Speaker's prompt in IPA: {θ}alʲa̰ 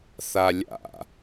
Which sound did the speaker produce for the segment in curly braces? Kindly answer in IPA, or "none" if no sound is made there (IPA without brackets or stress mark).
θ